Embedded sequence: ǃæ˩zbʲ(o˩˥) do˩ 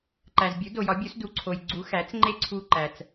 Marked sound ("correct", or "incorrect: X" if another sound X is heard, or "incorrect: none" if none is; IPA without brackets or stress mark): incorrect: u˩˥